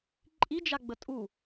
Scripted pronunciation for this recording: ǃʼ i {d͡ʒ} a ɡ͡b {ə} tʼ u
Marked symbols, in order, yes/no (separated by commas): yes, yes